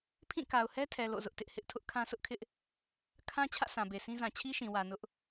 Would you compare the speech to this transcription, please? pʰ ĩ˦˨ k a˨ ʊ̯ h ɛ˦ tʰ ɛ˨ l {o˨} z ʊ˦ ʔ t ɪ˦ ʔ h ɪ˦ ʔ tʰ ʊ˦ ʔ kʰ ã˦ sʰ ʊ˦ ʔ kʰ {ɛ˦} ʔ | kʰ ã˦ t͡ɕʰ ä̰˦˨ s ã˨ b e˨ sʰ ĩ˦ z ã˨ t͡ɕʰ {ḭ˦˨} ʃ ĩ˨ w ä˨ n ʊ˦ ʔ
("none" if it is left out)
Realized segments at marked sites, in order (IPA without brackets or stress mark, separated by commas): o̰˦˨, ɪ˦, i˦